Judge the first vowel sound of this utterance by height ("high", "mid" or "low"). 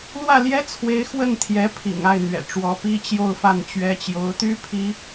low